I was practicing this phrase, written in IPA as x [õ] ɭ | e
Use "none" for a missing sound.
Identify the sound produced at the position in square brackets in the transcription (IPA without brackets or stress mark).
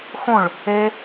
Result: õ